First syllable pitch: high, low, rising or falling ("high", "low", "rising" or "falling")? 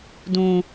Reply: high